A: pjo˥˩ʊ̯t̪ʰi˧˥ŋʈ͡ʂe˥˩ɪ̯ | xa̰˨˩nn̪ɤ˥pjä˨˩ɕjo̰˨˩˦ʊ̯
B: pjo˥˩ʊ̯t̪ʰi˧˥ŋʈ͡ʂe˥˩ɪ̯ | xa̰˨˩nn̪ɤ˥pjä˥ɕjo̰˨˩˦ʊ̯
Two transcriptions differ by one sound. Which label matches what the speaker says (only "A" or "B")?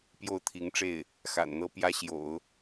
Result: B